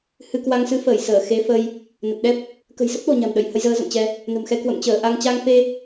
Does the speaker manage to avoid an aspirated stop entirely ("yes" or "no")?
yes